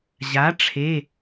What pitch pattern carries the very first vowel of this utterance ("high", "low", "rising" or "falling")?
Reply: rising